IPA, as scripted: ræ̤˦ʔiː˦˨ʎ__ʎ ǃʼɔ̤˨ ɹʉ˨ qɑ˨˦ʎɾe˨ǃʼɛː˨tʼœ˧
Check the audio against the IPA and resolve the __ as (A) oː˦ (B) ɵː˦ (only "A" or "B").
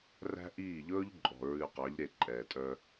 B